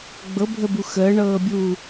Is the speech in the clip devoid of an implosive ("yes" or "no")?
yes